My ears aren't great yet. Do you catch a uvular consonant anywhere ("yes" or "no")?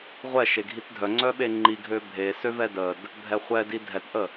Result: yes